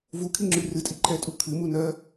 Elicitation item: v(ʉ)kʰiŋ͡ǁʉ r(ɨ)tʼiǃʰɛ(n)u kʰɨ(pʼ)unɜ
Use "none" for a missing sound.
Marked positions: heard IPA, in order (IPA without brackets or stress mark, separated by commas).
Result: u, ɨ, tʼ, m